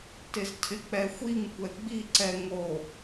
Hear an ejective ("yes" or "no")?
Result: no